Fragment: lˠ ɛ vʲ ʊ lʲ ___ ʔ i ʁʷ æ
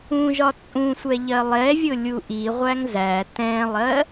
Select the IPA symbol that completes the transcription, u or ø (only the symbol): u